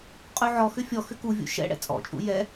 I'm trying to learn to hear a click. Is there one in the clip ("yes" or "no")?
no